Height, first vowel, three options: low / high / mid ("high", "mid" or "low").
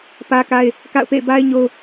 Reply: low